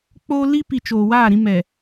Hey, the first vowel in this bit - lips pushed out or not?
yes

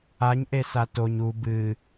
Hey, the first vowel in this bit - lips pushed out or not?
no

